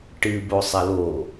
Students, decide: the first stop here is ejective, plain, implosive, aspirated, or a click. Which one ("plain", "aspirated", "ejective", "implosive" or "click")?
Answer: plain